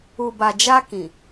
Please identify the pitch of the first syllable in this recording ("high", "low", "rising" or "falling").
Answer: low